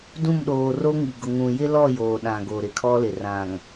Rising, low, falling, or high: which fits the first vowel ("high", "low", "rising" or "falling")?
falling